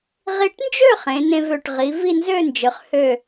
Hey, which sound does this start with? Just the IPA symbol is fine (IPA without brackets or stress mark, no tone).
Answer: ʁ